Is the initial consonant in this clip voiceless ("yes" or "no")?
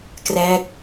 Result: yes